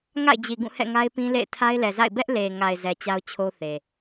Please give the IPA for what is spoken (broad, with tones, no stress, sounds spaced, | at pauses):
ŋ a̰˦˨ ɪ̯ d͡ʑ i˨ ɡ ũ˦˨ h ɛ̰˦˨ ŋ a˦ ɪ̯ p ĩ˦ l ḛ˦˨ ɪ̯ tʰ a˦ ɪ̯ l ɛ˨ z a̰˦˨ ɪ̯ b ɛ˦ ʔ l e˨ ŋ a˨ ɪ̯ z ɛ˨ t͡ɕ a˦ ʊ̯ t͡ɕʰ o˦ θ e˨